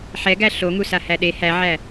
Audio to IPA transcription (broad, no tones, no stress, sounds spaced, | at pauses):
ħ ɛ ɡ æ ɬ o ŋ u s a h æ ɗ e h æ ʕ æ